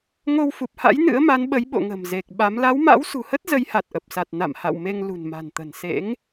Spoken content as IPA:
ŋ o˧ w f u˨˩ p̚ h a̰˧˥ j n ɨ̰˧˥ ə̯ m a˨˦ n ɓ ə˨˦ j ɓ o̰˧˨ ŋ ə̤˨˩ m z e˨˩ k̚ ɓ a˨˦ m l a˨˦ w m a̰˧˥ w s ṳ˨˩ h ə˦˥ t̚ z ə˨˦ j h a˨˩ t̚ ʔ ə˨˩ p̚ s a˨˩ t̚ n a̰˧˨ m h a̰˧˨ w m e˧ ŋ l ṳ˨˩ n m a̤˨˩ n t̪ ə̤˨˩ n s ḛ˧˥ ŋ

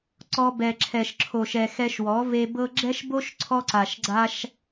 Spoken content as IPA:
ǀ ɔ˧ b ɛ˨ ǁʰ ɛ˨ ʃ ǁʰ o˨ ʃ ɛ˨ x ɛ˧ ʃ w ɔ˨˦ v e˧ b ɤ˦ ɡ͡ǁ ɛ˦ ʃ b o˦ ʃ ǀʰ ɔ˧ ǀ a˨ ʃ ɡ͡ǀ a˧ ʃ

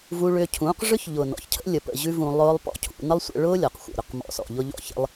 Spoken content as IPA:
v u˦ ɭ ʏː˦ cʰ ũː˨˦ q ʐ ʏ˦ ç ʎ ʊ˨ n ɔ̰˨ ç cʰ ə̰˦ lʲ ə˨ p ə̰˨ ʑ ʉ˦ v ũ˧ lˠ ʊː˦ lˠ p ɔ̰˧ cʰ ṵ˧ n ə˦ lˠ sʷ ə̰˧ ɭ ʊː˦ lʲ ɔ˨ q xʷ ə̰˨ ɾ ʏ˦ q m ɔ̰˨ s ɔ̰˨ ʎ ʊ˧ ʎ ɔ̰˧ ç ə̰˦ lˠ

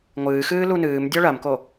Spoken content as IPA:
ŋʷ ɨː x ɨː l u n ɨː m dʲ ɔ ɭ ɐ m k o

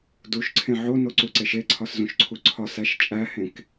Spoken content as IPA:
d u ʃ ǀʰ ẽ ʕ o n o ǀ u ǀ e ʃ e ǀʰ ɒ s z ũ ʃ ǀʰ u ǀʰ ɒ s æ ʃ t͡ʃʼ æ h ẽ k

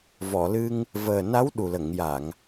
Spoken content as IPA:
v ɔ˨˩˨ l ɨ˧ ŋ | v əː˨˩ n a˧˥ w ɗ u˨˩ l ə˨˩˨ ŋ j a˨˩˨ ŋ

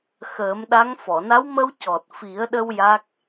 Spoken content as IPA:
x əː˨˩˦ m ɗ a˧˥ ŋ f ɔ˨˩˨ n a˧˥ w m ə˧ w c ɔ˨˩ t̚ f i˨˩˦ ə̯ ɗ ə˧ w j a˦˥ k̚

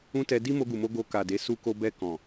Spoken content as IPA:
ũ˦ t ɛ˧ d i˦ m o˧ ɡ u˨ m o˧ ɡ o˧ k a˨ d e˨˦ s u˦ k o˦ b ɛ˧ k ɔ̃˨

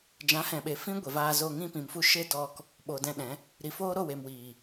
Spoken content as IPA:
d͡ʒ ã˨˦ h ɛ̃˨ ɓ e˨ f ĩ˦ ɡʷ e˨ v aː˧ z o˧ ŋ ĩ˧ p ĩ˨ m f u˧ ʃ e˦ d ɔ˧ k | ɓ o˨ d ɛ̃˧ ɗ ɛ̃˨˦ | ɾ i˨ f oː˦ ɾ o˦˨ w e˨ m w iː˨

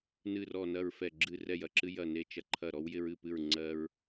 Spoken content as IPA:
n ɨ˧˩ r ɔ˧˩ n ɐ˧˩ ɹ f ɛ˧˩ ɡ͡ǁ ɨ˧˩ r ɛ˧˩ j ɐ˧˩ ǁ ɨ˧ j ɐ˧˩ n e˧˩ t͡ʃ ɐ˧˩ ǃʰ ɐ˧˩ ɾ ɔ˧ w j ɪ˧ ɹ ɨ˧˩ p ɨ˧˩ ɹ ŋ͡ǀ ɜ˧ ɹ

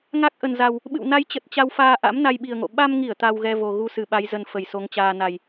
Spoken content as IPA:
ŋ a˦˥ k̚ ʔ ə˨˩ n z a˨˩ w | ɓ ɨ̰˧˨ w n a˨˦ j t͡ɕ ə˨˩ t̚ t͡ɕ a˧ w f aː˧ ʔ a̰˧˥ m n a˧ j ɓ i˨˩ ə̯ ŋ o̰˧˨ ɓ a˧ m ŋ i˧˩ ə̯ t̪ a˧ w ɣ ɛ˧ v o˨˩ ɣ u˧ s ɨ˧˩ ɓ a˨˦ j z ə˨˩ n f ə˧˩ j s o˨˦ ŋ t͡ɕ aː˧ n a˨˩ j

